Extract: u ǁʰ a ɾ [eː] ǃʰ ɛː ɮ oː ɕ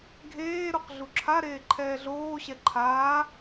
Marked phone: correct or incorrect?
correct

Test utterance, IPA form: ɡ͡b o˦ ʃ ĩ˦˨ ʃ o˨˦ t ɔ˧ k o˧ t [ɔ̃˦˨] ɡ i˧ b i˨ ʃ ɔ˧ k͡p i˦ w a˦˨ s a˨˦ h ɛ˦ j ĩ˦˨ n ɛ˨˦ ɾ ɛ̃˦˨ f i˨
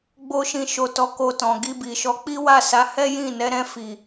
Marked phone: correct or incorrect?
incorrect: ɔ̃˨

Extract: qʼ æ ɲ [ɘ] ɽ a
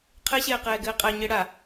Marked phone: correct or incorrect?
correct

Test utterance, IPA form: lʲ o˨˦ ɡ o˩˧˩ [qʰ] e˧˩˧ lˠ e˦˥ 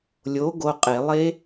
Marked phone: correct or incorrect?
incorrect: qʼ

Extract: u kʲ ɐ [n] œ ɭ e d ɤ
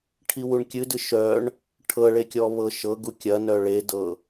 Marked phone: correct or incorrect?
correct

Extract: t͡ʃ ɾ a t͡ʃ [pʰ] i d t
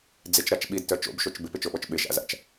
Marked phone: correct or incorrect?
incorrect: ɓ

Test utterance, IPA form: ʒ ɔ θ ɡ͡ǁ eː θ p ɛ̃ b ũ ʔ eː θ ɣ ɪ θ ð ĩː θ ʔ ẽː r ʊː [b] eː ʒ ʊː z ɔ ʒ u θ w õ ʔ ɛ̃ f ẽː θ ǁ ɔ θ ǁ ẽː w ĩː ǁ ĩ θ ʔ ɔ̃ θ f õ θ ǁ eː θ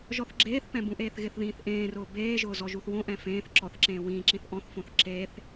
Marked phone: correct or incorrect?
correct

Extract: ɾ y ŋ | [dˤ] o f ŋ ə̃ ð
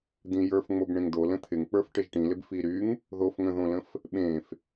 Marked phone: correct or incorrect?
incorrect: ð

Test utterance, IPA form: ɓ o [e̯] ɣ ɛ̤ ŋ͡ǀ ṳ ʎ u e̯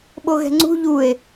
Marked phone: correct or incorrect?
incorrect: none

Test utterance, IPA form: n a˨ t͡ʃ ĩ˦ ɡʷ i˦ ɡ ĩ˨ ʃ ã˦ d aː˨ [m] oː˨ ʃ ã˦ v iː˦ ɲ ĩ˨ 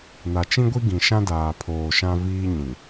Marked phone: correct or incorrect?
incorrect: pʰ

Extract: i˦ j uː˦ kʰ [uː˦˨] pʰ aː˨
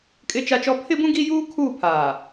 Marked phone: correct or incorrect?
correct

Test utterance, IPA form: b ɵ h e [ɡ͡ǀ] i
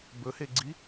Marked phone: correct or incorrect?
correct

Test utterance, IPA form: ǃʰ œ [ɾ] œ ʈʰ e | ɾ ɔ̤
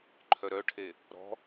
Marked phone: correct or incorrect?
correct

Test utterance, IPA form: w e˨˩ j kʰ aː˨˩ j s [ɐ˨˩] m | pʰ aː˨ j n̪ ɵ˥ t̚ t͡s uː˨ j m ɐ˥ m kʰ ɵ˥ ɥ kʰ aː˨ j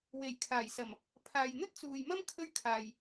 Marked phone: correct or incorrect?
correct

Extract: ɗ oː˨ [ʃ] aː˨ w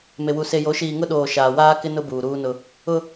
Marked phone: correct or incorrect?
correct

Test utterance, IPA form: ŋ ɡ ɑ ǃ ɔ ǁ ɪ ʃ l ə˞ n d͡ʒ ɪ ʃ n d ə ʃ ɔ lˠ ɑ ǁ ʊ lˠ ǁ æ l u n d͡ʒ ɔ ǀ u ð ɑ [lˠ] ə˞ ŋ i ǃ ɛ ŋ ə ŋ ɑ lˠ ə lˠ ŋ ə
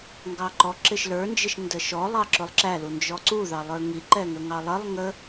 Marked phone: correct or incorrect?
correct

